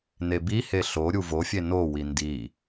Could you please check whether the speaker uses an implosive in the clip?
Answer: no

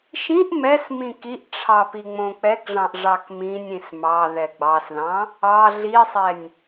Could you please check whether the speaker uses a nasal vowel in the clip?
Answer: yes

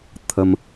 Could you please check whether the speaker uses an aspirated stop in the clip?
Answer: yes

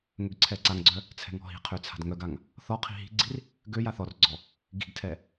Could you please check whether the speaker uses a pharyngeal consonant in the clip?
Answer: no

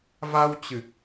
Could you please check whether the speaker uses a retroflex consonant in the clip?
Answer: no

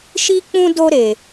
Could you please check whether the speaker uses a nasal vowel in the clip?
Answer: yes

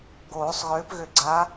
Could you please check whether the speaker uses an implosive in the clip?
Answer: no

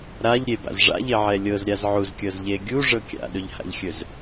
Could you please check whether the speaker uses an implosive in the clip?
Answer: yes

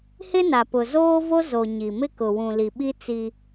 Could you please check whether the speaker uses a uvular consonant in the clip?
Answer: no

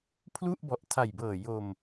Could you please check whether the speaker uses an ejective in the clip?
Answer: no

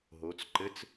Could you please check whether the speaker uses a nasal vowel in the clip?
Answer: no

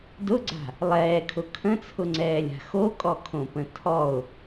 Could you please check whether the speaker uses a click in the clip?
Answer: yes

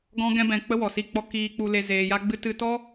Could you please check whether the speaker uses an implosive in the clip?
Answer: no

